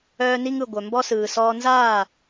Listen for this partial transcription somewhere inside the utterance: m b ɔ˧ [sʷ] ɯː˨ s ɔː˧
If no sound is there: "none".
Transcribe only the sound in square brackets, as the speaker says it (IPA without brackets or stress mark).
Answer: s